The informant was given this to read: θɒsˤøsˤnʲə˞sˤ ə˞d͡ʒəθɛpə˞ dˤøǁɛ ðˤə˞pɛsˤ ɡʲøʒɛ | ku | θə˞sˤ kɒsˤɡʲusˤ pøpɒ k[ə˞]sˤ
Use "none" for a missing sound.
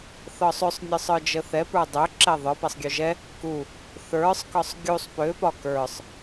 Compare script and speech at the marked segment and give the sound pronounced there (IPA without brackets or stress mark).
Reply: ə˞